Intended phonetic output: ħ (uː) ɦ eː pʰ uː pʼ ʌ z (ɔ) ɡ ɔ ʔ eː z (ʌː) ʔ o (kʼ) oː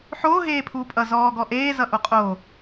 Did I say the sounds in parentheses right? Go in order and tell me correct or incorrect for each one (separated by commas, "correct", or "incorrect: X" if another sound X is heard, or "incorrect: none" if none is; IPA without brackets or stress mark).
incorrect: oː, incorrect: ɔː, incorrect: ʌ, incorrect: qʼ